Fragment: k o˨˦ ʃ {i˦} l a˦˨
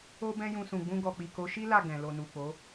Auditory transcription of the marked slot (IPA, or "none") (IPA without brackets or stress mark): i˦